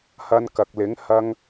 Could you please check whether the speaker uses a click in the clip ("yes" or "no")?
no